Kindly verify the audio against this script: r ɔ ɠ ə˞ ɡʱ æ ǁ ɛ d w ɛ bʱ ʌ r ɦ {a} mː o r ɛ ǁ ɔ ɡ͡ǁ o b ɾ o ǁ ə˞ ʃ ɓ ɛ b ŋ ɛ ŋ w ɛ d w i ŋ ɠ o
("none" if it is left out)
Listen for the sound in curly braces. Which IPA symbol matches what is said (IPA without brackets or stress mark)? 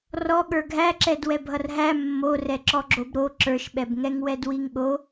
æ